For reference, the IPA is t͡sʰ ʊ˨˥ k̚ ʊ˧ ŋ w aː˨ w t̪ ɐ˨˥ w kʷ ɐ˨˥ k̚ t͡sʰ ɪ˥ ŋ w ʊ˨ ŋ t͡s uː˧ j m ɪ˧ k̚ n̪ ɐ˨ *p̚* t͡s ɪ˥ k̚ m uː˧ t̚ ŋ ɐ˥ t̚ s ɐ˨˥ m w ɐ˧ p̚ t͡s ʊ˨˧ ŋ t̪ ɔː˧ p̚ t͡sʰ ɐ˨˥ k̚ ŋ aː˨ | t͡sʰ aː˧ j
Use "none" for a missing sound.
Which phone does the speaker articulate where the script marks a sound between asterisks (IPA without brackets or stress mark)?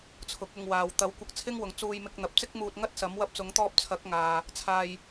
p̚